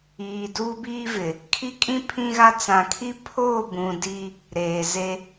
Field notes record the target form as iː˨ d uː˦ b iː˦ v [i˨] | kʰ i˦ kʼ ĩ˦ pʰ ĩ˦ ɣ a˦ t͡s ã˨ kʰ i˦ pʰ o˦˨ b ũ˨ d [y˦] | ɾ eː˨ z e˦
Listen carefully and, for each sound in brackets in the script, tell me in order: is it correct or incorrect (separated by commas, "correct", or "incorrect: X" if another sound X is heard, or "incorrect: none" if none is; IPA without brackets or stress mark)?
incorrect: ɪ˨, incorrect: i˦